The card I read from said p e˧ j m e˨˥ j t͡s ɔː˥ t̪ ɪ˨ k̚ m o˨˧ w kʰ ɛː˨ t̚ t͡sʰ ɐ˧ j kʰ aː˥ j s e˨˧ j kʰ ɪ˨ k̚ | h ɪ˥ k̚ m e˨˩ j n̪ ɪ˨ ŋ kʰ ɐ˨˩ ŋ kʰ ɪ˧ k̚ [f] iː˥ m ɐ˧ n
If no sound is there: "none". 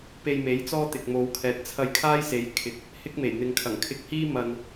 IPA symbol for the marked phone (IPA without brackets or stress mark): h